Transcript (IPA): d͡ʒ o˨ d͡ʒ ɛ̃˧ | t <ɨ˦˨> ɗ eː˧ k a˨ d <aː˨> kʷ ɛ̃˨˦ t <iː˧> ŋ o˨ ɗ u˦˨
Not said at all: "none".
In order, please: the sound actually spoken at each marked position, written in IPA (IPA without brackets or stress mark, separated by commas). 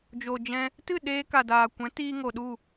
ɨ˦˨, aː˨, iː˧